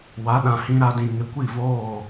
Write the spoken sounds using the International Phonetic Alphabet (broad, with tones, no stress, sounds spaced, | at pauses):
w a˨˦ ɗ ã˨ h ĩ˦ ɾ a˦ d ĩ˨ ŋ ɪ˨˦ kʷ i˦˨ v oː˦˨